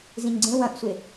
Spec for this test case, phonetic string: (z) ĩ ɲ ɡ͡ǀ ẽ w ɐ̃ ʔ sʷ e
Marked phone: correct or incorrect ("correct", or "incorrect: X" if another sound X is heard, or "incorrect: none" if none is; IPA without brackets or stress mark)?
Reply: correct